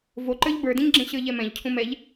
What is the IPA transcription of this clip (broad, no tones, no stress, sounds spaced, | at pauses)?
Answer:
v o ǃ ə˞ ʎ b ə˞ d ĩ ɲ ɡ͡ǁ ẽ ɕ ə˞ ʎ ɛ m ɛ̃ ʎ cʰ ũ m ɛ ʎ